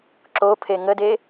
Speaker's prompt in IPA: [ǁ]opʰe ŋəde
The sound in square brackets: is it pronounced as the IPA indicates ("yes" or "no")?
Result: yes